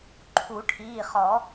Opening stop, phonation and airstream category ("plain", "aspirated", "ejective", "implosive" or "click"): click